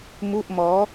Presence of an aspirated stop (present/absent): absent